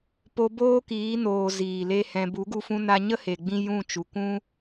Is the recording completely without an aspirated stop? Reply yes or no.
yes